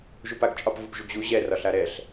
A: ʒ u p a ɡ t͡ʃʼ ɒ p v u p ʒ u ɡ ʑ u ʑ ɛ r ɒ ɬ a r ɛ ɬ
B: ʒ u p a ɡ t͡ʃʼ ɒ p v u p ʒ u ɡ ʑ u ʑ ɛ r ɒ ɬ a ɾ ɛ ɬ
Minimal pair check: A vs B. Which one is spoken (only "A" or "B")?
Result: B